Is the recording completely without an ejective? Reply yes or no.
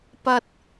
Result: yes